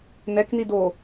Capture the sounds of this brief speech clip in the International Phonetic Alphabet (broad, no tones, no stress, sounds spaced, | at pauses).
n ɛ k n i d o